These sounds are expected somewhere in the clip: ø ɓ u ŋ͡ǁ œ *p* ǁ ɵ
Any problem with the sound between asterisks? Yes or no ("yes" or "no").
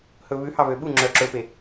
yes